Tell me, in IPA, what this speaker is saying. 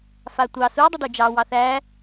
f a tʷ ɑ s u dˤ ʏ ɖ u d͡ʒ ɑ w ɑ θ æ

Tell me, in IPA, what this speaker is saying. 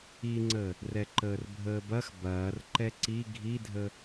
i ŋ͡ǀ ə | r ɛ ǃ əː r bʱ əː b ɐ x b ɐː r ǃ ɛ ǀ i ɡʱ i dʱ ə

